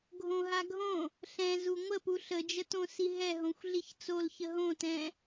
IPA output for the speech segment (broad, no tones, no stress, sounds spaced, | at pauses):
ɡʱ õ ɦ a ɡʱ õ | ɬ ɛ̃ z u ŋʷ ə p u ɬ ə d͡ʒ ə t õ s i ɦ ɛ ɦ õ xʷ ɮ i ç t͡s o l ç ə ɦ õ t ɛ̃